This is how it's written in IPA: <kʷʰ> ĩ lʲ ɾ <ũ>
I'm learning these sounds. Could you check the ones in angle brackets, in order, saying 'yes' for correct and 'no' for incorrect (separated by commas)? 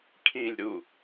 no, no